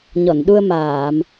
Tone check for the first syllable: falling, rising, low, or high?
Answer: low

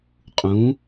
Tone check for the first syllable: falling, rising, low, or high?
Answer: rising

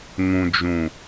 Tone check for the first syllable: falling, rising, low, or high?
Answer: low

